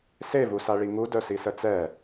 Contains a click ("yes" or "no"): no